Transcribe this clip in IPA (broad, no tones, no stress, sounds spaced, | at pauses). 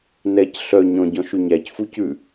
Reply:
n ɛ c ɬ œ ɲ ɔ̃ ɟ ɔ̃ ʃ y ɲ æ c f u c ʉ